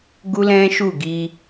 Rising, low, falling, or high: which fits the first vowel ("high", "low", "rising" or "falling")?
high